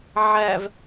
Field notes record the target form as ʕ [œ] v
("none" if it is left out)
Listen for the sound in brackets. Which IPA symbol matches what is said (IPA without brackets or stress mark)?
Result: æ